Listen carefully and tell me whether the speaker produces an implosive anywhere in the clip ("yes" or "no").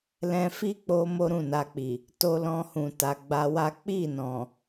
no